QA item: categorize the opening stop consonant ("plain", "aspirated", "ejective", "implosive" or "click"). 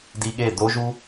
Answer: plain